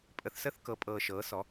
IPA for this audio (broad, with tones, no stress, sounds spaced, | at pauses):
pʼ ə˩˥ θ s ə˧˥˧ θ k ɤ˩˥ pʼ ɤː˨ ʃ ɤː˩˥ s ɔ˩˥